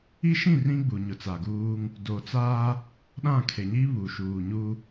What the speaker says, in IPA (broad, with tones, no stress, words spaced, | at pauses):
i˦ʃĩ˦˨ rĩ˦ ɡ͡bu˨ɲʊ˨t͡sa˨ɡuː˦ŋ | do˨t͡saː˦ | ɗã˦˨kʰe˨ɲi˦ βu˨ʃuː˨ɲu˦